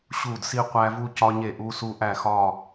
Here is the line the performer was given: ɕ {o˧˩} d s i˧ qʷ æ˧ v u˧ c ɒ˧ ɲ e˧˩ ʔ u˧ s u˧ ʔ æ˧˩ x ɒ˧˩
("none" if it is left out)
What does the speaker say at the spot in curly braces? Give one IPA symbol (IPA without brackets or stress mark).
u˧˩